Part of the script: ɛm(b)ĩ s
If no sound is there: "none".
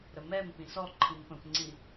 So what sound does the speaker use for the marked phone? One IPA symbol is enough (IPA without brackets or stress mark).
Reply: p